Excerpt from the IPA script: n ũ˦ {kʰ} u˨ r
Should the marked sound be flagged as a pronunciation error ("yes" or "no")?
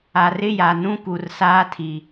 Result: yes